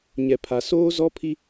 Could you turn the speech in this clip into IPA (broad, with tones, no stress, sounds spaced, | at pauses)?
ɲ ɛ˨ pʰ a˨ s oː˦ z ɔ˦ pʰ i˦